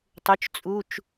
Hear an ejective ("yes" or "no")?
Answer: yes